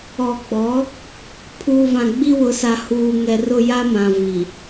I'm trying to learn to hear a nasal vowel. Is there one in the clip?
yes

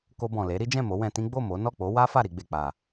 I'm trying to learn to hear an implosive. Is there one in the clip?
no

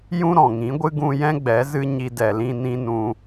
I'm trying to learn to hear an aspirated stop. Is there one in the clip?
no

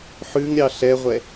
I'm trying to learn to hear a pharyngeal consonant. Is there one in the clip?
yes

